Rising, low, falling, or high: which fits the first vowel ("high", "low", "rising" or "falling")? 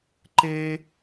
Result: high